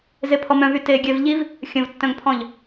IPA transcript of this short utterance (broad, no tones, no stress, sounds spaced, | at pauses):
z e pʰ ɔ m œ̃ v y t e ɡʲ ɛ v ʎ i v | xʲ ə̃ v tː œ̃ ŋ pʰ ɔ̃ ʎ